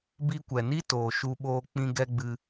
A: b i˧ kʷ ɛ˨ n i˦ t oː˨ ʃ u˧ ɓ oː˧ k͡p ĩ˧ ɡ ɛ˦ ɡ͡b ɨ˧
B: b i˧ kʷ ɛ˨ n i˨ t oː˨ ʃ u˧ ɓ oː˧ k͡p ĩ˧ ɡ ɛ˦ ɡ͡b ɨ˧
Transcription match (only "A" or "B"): A